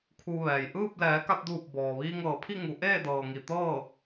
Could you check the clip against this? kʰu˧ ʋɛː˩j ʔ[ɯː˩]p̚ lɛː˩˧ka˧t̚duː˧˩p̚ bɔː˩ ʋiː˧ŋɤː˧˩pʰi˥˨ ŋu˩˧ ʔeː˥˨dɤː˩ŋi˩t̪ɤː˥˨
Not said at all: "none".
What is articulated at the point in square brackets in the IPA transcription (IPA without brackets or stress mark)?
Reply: ɯː˥˨